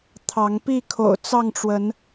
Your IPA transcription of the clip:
t̪ʰ ɑ˨˦ ŋ p i˥˨ kʰ o̰˨˩ ʊ̯ t͡s ɑ˥˨ ŋ ʈ͡ʂ w ə˨˦ n

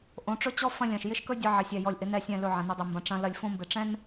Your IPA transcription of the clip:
ʔ õ˨˦ ʈ͡ʂ ɵ˦ t͡ɕ ɔ˦ f ɐ̃˦ lʲ ɐ̃˨ ʃ j ɪ˦ ʃ k ɵ˦ dʲ ɯ˨ ʕ ɪ˨ sʲ ɛ˨ j ɔ˨ lʲ ʔ ɪ˨˦ n ɛ˦˨ sʲ ɛ̃˦˨ l ɵ˦˨ ʕ ɐ̃˨ n ɪ˦˨ dˤ ɪ˦˨ m b ɐ̃˨ ʈ͡ʂ ɐ̃˦ l ɐ˦ lʲ f õ˦ m b ɪ˨ ʈ͡ʂ ɛ̃˦ n

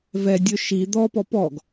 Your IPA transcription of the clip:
v ɛ dʲ ɵ ʃ i d̪ ɔ p ɔ p ɔ ɡ

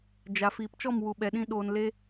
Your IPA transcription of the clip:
d͡ʒ a˨ f iː˨ p t͡ʃ ɔ˦˨ m w u˨ ɓ ɛ˨ ɗ ĩ˧ ɗ oː˧ n l e˦

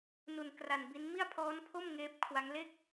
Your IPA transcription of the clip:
n u˧ n k r a˧ n b i˦˥ n m i˥˩ a̯ pʰ ɔː˦˥ n pʰ o˥˩ m ŋ eː˦˥ p̚ kʰ w a˦˥ ŋ l e˥˩ k̚

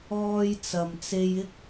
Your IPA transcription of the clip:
ɔː˧ j t͡s ɐ˨ m t͡s e˧ j ɪ˥ k̚

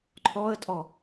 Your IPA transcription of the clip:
ǃʰ ɔ ə̯ tʼ ɔ

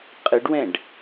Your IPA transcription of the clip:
qʼ ɯ ɖ w ɛ̃ ɖ

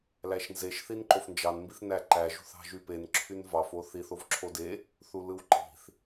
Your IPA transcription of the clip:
l æ ʃ n z e ʃ θ i n ǃ o f n d͡ʒ ɑ n m b i θ n æ ǃ æ ʒ ṳ θ ɑ̤ ʒ y p e n ǁʰ y n v ɑ f o θ i θ o v ǁʰ o d e | θ u l ɯ w ǃ i̤ θ

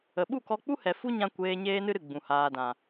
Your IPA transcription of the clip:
ə˨ ɓ u˦˨ k ɔ˧ k͡p u˦ h ɛ˨ f u˦ ɲ ã˧ kʷ eː˧ ɲ eː˦ n ɨ˦ ɾ ɨ˦˨ ɡ͡b ũ˨ h aː˨ d ã˨

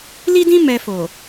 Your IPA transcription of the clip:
l i˦ d ĩ˦ m ɛ˧ f o˨

